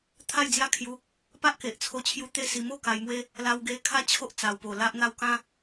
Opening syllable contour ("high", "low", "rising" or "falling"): falling